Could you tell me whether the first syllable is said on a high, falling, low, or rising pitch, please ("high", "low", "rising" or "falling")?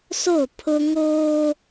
falling